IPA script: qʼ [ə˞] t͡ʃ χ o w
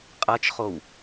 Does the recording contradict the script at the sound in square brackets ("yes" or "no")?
yes